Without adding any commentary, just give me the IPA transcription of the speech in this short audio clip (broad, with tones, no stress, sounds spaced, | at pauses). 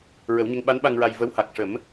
ɹ ə˨˩˦ w ɲ ə˧˥ ŋ ɓ a˧˥ n ɓ a˧ ŋ ɹ a˧ j v ə˧˥ w h a˨˩ k̚ ʂ ə˨˩˦ m